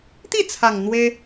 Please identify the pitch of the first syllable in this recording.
falling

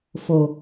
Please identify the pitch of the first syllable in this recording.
low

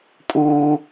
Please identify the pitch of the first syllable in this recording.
high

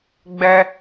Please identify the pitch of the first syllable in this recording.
high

